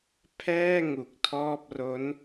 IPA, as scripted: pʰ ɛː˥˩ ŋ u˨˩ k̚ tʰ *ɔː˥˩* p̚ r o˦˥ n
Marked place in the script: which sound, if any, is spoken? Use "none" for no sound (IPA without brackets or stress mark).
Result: ɔː˥˩